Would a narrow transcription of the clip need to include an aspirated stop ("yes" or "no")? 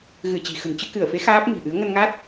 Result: no